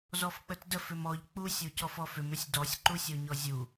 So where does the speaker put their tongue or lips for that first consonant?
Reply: tongue tip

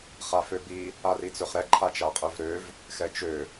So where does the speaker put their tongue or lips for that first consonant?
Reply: uvula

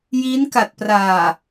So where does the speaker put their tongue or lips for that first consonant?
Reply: palate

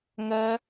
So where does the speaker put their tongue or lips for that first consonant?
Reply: velum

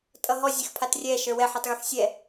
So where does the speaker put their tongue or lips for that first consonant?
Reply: tongue tip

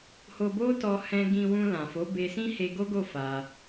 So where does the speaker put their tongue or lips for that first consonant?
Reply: throat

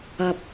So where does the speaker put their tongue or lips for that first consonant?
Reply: lips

